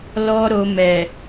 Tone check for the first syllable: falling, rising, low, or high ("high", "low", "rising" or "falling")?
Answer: high